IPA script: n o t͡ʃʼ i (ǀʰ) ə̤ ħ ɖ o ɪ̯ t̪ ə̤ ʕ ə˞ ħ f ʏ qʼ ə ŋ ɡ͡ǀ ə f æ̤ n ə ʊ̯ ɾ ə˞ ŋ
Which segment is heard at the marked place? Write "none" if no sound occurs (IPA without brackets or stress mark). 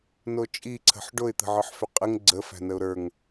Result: ǀʰ